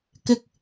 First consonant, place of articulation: velar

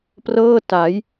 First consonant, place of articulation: labial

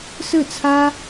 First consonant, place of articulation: alveolar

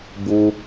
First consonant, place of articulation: labial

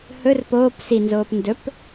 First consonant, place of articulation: glottal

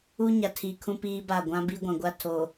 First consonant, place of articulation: palatal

